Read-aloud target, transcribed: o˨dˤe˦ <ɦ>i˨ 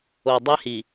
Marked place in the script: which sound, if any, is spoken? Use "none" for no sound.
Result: h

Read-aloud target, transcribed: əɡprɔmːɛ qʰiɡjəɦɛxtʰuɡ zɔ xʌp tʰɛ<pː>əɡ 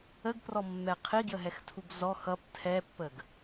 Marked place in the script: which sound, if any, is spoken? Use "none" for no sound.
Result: pː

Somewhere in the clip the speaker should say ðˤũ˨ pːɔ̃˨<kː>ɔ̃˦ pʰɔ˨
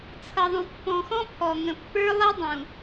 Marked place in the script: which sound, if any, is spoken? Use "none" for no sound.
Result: x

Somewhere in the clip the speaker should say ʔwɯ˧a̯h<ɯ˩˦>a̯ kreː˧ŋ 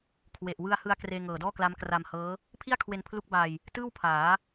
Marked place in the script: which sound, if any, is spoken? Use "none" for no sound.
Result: ɯ˧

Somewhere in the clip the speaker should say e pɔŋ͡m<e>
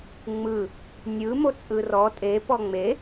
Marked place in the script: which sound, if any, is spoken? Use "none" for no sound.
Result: e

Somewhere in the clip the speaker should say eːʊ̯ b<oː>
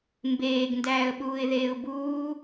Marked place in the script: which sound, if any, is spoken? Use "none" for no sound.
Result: uː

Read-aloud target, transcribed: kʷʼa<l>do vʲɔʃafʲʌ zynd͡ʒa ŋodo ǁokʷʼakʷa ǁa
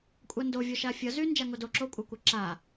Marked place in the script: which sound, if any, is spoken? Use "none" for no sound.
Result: n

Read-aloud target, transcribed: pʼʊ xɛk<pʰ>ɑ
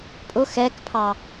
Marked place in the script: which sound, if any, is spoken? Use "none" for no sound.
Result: pʰ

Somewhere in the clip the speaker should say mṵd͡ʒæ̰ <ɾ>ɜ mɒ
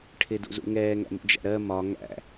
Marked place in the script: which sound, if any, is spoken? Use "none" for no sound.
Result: ɾ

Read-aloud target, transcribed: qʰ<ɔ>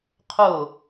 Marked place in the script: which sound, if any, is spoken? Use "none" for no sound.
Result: o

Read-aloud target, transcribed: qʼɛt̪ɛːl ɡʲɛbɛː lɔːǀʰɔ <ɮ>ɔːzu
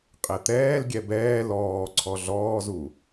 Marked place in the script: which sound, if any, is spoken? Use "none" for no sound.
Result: ɮ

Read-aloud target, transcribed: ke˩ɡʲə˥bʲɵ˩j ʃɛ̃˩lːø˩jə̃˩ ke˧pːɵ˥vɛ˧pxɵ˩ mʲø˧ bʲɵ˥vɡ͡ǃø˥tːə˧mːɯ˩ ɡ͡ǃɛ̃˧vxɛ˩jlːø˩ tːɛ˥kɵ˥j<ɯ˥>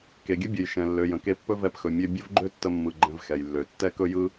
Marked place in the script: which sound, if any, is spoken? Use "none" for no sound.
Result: ɯ˥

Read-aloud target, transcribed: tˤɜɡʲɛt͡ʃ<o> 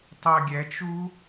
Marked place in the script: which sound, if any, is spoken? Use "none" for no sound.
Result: u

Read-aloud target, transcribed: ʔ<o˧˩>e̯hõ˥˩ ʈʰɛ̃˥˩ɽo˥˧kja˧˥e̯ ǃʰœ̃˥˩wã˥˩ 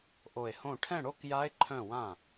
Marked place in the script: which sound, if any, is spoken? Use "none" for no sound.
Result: o˧˩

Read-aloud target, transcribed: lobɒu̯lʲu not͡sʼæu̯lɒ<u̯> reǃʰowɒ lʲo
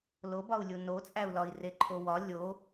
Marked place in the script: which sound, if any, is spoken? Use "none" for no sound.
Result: i̯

